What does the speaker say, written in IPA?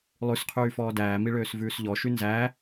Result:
lˠ ʉ s qʰ yː f ɔː d æː m i ɭ øː s v ʉː s ʎ ɔ ʃ y n z æ

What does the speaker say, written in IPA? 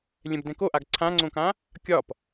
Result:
lʲ ɛ̃ b d ɛ̃ k o ʔ a ɡ ǀʰ ã ŋ͡ǀ õ k ã | kʲ ɒ p

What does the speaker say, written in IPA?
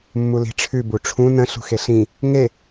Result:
mː u l i̤ ʈ͡ʂʰ ʉ b u ʈ͡ʂʰ ũ n ə̃ ɬ ṳ x e ɬ ĩ | ŋ e

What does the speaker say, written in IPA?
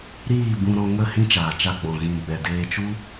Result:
ɾ iː˦˨ b ũ˧ ɾ ɔ̃˧ ŋ ə˦˨ h ĩ˦ t͡ʃ aː˨ t͡ʃ a˧ ɡ͡b ɔ̃˨ ɣ ĩ˨ ɡ͡b ɛ˨ d eː˧ t͡ʃ u˦

